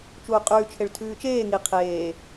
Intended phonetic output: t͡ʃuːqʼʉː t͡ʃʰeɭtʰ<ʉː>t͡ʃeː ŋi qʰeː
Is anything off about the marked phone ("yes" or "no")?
no